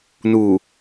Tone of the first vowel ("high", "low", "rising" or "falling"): low